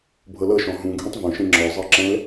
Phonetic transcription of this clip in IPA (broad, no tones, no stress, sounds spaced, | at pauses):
bʱ ɤ l ɤ ʃ ɔ̃ ɦ ũ ɡʱ ɛ̃ tˤ v õ ʃ ẽ ŋ͡ǁ ɔ zˤ ɤ ǁ ɛ̃ l